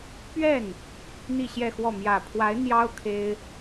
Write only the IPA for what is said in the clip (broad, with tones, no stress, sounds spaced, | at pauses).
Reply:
p ɥ ɛ˥˩ n | n̪ i˥˧ ɕ j ɛ˥˧ x w ɔ˥˩ m j ä˨˩ pʰ w a˧˥ ɪ̯ n̪ j ɑ˥ ʊ̯ kʰ e˥ ɪ̯